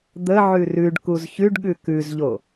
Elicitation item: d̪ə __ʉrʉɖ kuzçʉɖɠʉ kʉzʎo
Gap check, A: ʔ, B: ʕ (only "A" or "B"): B